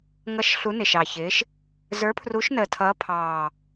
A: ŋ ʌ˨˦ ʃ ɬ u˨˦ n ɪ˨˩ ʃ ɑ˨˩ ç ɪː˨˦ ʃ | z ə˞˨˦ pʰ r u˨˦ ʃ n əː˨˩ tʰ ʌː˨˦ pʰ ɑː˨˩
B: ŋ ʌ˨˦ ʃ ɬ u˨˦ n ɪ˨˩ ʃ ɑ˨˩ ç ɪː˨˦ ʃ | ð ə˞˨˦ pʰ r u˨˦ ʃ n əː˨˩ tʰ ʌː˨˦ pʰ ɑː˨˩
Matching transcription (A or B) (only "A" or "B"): A